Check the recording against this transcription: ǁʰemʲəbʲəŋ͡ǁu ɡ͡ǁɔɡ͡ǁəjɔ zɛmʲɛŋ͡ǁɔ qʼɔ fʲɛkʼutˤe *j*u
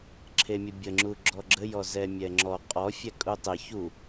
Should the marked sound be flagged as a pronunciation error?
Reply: yes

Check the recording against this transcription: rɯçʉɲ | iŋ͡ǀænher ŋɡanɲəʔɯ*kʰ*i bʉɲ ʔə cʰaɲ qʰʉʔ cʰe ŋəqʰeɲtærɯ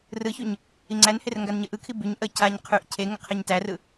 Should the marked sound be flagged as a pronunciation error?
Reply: no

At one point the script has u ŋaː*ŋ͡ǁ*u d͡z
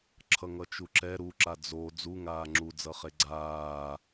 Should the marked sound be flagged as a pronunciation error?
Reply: no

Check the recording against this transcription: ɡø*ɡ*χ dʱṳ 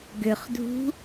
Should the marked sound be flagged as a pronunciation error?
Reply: yes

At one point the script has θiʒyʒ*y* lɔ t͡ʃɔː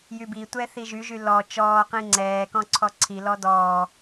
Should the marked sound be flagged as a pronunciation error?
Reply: no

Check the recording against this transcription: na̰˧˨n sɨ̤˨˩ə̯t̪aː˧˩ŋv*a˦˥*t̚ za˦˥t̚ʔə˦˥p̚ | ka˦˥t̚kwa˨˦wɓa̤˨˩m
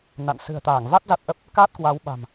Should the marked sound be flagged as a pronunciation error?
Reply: no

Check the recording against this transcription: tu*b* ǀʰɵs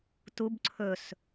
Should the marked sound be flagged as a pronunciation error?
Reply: no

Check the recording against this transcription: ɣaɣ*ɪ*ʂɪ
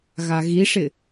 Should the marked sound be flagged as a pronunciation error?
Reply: yes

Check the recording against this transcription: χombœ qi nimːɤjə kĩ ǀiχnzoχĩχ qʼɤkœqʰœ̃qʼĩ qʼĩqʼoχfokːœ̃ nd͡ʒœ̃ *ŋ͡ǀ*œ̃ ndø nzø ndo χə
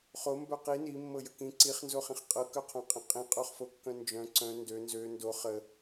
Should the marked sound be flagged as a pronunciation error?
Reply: yes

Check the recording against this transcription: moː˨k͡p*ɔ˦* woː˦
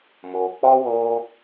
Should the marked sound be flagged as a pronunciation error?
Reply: no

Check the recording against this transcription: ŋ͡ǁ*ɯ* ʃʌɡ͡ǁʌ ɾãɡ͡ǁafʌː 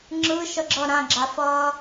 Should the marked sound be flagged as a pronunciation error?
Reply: no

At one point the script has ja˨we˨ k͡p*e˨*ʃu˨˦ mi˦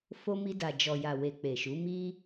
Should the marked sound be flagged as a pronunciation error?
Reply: no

